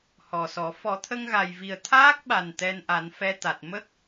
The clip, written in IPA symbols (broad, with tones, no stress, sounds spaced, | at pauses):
h ɔ˨˩ s ɔ˨˩˦ f ɔ˨˩˦ t̪ʰ ə˧ ŋ ɣ a˨˩ j v i˨˩ ə̯ t̪ʰ aː˦˥ k̚ ɓ a˨˩ n t̪ ɛ˧ n ʔ a˨˩˦ n f ɛ˧ t̪ a˨˩ t̚ m ə˦˥ k̚